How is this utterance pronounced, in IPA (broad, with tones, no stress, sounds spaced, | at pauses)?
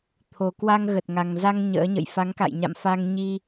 t̪ʰ o˨˩ k w a˧ ŋ ɣ ə˨˩ t̚ ŋ a˨˩ ŋ z a˧ ŋ ɲ ə̰ː˧˥ ɲ ə̰˧˨ j f a˨˦ ŋ k a̰˧˨ j ɲ a̰˧˨ m f a˧ ŋ ɲ i˧